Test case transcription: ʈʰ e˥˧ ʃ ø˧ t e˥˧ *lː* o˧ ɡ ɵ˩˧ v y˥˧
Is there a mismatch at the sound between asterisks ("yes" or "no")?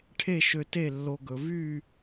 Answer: no